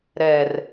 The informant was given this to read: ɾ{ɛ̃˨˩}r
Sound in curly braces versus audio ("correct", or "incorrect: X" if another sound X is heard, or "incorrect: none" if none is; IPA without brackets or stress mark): incorrect: ɛ˨˩